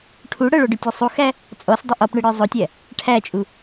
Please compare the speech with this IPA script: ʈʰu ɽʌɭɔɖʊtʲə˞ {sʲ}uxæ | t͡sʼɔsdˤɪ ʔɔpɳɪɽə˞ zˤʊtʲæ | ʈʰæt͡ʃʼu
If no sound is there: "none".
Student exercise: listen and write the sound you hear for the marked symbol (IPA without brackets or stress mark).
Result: sˤ